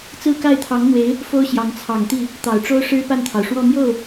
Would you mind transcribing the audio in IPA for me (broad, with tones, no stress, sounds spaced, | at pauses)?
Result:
t͡s ɹ̩˥˧ k a˥˩ ɪ̯ t̪ʰ ɑ˧˥ ŋ n̪ w e˧˥ ɪ̯ | f o˥ ʊ̯ ɕ j ɑ˧˥ ŋ t͡sʰ ɑ˨˩ ŋ t̪ i˥˩ | t̪ ɑ˨˩ ʊ̯ ʈ͡ʂ o˥ ʊ̯ ʂ ɻ̩˥ p a˥˩ n t̪ʰ ɑ˩ ʊ̯ ʂ w ɔ˥˧ m j o˥˩ ʊ̯